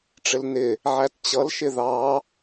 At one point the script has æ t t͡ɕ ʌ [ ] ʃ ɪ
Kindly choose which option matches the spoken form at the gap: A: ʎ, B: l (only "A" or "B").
B